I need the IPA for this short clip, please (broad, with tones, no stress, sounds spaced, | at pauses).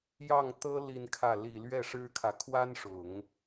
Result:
j ɑ˥˩ ŋ t̪ ɤ˥ l i˥˧ n kʰ ä˥˩ l i˨˩ l ɥ ɛ˥˩ ʂ ɻ̩˥ kʰ ä˨ kʰ w a˥ n ʂ ʊ˨˩˦ ŋ